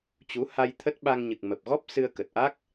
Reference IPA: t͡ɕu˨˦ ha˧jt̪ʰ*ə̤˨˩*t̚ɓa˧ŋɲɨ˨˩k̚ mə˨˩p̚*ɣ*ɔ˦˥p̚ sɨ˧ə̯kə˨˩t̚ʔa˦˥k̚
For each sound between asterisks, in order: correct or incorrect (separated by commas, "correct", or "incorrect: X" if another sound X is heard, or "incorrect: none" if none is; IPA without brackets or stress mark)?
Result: incorrect: ə˦˥, correct